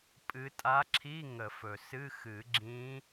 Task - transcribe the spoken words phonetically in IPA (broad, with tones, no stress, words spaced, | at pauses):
pʼɨ˧˥ tʼa˧˥ǁʰi˧˥˧ ŋə˨˩˦fɵ˩sɨ˧˥˧ xɨ˨˩˦ɡ͡ǁĩ˧˥